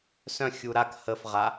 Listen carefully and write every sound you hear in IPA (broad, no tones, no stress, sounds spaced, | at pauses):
s œ̃ xʲ u ɾ a k h ə f ʁ a